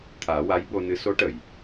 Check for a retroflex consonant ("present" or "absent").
present